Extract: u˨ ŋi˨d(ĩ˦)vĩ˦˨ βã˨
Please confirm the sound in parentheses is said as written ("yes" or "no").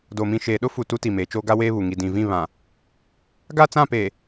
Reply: no